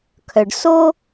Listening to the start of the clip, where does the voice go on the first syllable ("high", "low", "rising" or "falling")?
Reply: low